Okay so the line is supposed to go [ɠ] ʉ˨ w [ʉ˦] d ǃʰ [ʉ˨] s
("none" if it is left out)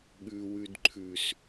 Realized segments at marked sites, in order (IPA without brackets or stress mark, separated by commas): ɠ, ʉ˨, ʉ˨